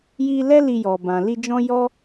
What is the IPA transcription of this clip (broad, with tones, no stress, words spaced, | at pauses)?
ji˧lɛ˦ li˧jɔ˨bã˨ li˧d͡ʒɔ̃˦jɔ˦